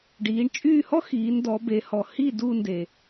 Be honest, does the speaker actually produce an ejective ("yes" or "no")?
yes